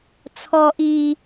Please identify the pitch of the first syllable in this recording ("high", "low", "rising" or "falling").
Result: high